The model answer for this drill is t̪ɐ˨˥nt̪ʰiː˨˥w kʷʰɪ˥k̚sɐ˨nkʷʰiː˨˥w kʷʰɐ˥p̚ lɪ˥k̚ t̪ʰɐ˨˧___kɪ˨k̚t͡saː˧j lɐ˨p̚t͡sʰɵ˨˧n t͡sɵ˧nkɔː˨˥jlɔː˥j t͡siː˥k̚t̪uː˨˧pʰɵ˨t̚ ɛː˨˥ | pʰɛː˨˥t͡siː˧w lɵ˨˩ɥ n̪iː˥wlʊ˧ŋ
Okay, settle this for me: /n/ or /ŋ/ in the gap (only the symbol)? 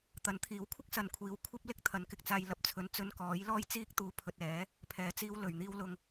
n